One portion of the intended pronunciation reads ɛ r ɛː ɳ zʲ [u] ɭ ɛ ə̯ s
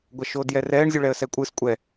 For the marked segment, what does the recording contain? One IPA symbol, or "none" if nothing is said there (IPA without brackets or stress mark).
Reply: u